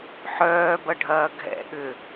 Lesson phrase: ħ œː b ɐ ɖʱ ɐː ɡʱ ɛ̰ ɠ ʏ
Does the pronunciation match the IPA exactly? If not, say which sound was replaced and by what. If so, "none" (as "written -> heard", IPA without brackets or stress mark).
none